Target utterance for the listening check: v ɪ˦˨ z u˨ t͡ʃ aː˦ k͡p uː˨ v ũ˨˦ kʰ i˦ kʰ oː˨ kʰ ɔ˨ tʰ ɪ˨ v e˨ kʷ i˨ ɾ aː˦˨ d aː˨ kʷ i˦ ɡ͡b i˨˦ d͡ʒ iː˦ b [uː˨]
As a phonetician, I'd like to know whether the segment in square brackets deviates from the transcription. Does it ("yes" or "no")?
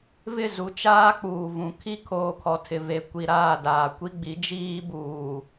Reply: no